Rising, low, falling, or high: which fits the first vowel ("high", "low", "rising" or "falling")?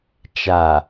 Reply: low